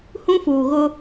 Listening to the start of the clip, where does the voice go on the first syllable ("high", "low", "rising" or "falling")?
high